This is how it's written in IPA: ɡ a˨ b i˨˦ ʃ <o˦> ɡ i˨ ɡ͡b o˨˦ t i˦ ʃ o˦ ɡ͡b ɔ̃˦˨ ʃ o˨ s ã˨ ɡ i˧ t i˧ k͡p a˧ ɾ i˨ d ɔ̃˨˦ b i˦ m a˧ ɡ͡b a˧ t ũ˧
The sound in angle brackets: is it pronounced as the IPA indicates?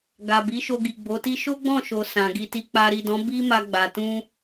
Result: no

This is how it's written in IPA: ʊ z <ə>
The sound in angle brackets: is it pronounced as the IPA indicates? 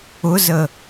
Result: yes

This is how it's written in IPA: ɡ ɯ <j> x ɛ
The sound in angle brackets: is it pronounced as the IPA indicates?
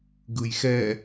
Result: yes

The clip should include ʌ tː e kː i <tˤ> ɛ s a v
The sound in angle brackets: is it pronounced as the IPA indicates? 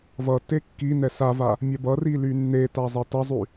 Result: no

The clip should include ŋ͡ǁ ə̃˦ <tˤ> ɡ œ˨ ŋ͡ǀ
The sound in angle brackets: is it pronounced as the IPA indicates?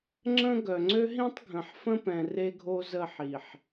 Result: no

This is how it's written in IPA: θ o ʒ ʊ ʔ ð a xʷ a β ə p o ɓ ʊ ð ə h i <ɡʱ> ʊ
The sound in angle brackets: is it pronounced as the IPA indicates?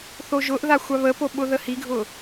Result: yes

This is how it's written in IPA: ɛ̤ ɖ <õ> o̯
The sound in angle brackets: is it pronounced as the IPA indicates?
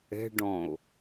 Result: no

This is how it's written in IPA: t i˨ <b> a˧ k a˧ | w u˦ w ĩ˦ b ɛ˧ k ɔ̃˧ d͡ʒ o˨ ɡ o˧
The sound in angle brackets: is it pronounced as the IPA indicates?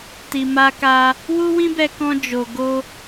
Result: no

